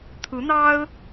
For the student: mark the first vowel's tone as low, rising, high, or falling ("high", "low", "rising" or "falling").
rising